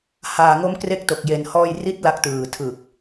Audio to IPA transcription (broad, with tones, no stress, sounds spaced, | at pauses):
h aː˧ ŋ o˦˥ m k r e˦˥ k̚ t o˨˩ k̚ j e˧ n h ɔː˥˩ j r i˦˥ t̚ l a˦˥ k̚ t ɯː˨˩ tʰ ɯ˨˩ k̚